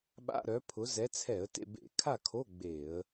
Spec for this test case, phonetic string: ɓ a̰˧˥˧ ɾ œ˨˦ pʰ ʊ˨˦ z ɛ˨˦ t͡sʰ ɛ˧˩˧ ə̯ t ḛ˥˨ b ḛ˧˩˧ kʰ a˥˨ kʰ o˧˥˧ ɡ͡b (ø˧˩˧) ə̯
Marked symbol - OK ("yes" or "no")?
no